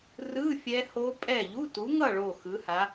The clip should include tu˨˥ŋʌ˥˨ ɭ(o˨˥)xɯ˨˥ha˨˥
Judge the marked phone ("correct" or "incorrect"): incorrect